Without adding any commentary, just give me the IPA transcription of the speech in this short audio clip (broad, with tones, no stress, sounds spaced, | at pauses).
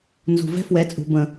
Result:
n z ṳ˨ v ɛ̤˦ f w ɛ˨˦ t͡sʼ ṳ˨ b ə̃˨